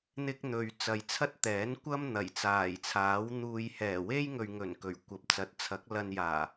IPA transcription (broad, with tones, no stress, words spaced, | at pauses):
n̪ɪ˥k̚n̪ɵ˨ɥ t͡sɐ˨jt͡sʰɐ˥t̚t̪ɛː˨˥nkʷɐ˥m n̪ɐ˨˩jt͡saː˨˩jt͡sʰaː˨˥wn̪uː˧j hɛː˨˩we˥jŋɵ˨ɥŋɵ˨˩n kɵ˨˩ɥkʷɐ˨p̚ t͡sɐ˨˥t̚t͡sʰɐ˨˥k̚ lɐ˧njaː˨˩